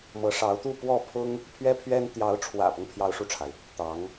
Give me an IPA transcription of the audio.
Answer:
mɤ˧˥ʂɑ˧˥ʊ̯t̪u˥˧ pwɔ˥˩pʰʊ˥ŋ | pʰɥɛ˥pʰɥɛ˥n t̪jɑ˧˥ʊ̯ʈ͡ʂʰwä̰˨˩pɤ˦ŋ pʰjɑ˥ʊ̯ʂu˥˩ʈ͡ʂʰa˩ɪ̯ | t̪ɑ˧˥ŋ

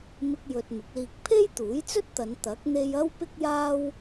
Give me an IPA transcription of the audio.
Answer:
mɪ˧k̚ jɵ˨t̚ mɪ˨˥k̚liː˧k̚ pʰe˥jt̪uː˨˥jt͡sɵ˥t̚t̪ɐ˨˧n t̪ɐ˨˥k̚ n̪e˧j ɐ˥wpɪ˥k̚jaː˥w

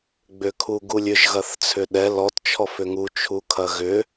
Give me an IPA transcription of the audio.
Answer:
ɡ͡bʏkʰuɡulʲʏʒ ɣɐθt͡sʰʏɗɛ lɔt t͡ʃʰɔfʏŋu t͡ʃʰukʰɐɣʏ

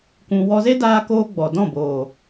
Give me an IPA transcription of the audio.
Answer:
kũ˧ wɔ˧ze˦daː˧koː˧ ɡ͡bɔ˨ dɔ̃˦˨boː˨

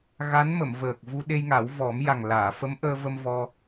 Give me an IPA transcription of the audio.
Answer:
ɣa˧˥n mə˨˩˨mvəː˨˩k̚vu˧ ɗe˧jŋa˨˩˦wvɔ˨˩˦m ja˨˩ŋlaː˨˩˨fə˧˥mʔəː˧ və˧mvɔ˧

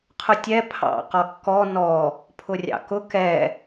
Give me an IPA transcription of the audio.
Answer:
qʰʊtʲɛ pʰɑ̰ qɒkːɔ nɔ | pʰʊrʲɑ̰kʊ kɛ

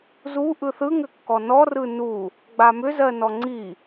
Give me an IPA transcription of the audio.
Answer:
zu ʔɯθɯŋʏkːɔ nɔrɯ nu | ɡ͡bamʏ zɜnɔŋ͡ǀi

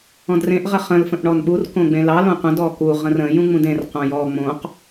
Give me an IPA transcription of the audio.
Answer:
ɔ̃drẽʔ ʁəχə̃l fə̃ʔɳɔnɓur kõɡ͡bẽlɑ lõqʷə̃ dɔku ʁə̃rə̃ jũŋ͡mũdẽr qõjɔ ŋ͡mõq

